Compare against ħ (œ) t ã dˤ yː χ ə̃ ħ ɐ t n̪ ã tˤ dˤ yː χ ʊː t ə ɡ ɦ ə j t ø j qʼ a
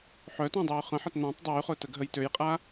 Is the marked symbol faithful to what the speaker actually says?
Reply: yes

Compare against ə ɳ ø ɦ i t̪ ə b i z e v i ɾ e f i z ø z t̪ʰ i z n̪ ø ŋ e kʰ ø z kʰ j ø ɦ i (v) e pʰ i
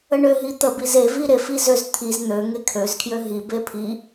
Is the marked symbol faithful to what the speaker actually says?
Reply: no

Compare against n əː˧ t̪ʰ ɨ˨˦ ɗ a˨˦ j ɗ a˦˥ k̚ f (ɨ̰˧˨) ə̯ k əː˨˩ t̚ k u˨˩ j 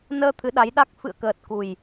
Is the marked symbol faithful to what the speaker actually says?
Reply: yes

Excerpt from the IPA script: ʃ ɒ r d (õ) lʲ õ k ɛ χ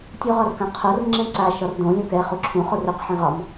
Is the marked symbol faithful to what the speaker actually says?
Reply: yes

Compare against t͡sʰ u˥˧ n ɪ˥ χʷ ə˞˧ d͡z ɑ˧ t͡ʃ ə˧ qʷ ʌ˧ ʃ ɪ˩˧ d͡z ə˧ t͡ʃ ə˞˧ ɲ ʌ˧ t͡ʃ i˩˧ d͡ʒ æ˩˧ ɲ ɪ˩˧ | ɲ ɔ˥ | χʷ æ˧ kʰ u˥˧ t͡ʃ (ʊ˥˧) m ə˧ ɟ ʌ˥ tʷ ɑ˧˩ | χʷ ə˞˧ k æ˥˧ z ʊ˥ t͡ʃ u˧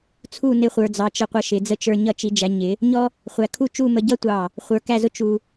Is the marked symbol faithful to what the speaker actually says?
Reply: no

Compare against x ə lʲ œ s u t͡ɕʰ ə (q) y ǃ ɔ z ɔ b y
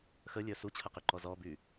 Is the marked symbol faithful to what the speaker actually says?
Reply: yes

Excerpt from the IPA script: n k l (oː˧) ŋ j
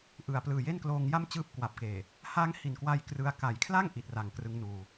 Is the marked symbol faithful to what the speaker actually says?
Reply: yes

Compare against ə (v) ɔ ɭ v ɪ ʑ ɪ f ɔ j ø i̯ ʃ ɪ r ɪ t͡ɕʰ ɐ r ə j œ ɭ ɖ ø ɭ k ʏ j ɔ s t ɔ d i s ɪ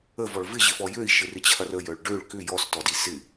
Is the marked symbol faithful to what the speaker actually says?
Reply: yes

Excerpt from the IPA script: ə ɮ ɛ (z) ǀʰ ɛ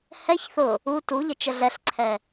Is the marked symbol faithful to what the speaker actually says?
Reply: no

